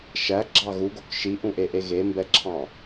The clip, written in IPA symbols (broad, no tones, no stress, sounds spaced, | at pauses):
ʃ æ ɡ͡ǁ ɑ ɣ u ɡ o k ʃ i ʔ ũ ʔ e ʔ e ɣ e m b ɛ ǁʰ ɑ̃